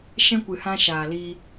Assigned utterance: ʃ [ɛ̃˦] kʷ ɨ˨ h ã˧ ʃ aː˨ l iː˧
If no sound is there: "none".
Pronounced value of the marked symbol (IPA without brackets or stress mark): ɛ̃˦